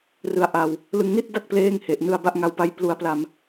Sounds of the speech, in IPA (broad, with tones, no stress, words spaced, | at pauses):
rɯ˧a̯ʔa˧w | lɯ˧ŋni˥˩t̚da˥˩k̚ pleː˥˩ŋhe˨˩ʔ nɯ˧a̯ba˦˥ʔŋa˧wpa˦˥j plu˧a̯pla˧m